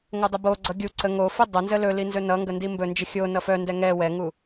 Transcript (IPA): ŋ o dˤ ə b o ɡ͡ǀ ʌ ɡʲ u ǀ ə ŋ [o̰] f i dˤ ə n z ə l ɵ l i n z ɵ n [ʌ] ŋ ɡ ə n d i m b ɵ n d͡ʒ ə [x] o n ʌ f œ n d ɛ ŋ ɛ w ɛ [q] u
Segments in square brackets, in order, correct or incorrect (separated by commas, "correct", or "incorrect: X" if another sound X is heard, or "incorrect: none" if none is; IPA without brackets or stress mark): incorrect: o, correct, incorrect: xʲ, incorrect: ŋ